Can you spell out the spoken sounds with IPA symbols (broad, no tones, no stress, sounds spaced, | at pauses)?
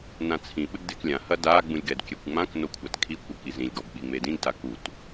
n ã t͡sʰ ĩ ɓ ɘ ɡ d e k lʲ ã h ɐ d a ɡ͡b ũ lʲ ɡ ɛ d kʲ ɛ kʷ ŋ͡m ã k n o kʷʰ a t kʰ i kʷ ɐ k i z ĩ lʲ ɡ ɔ b ɓ i ŋ͡m e d ĩ ɡ d a k u t